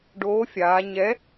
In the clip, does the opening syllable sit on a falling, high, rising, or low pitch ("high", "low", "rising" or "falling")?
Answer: rising